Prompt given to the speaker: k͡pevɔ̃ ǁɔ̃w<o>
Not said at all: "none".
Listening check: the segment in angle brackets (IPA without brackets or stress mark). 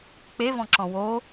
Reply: o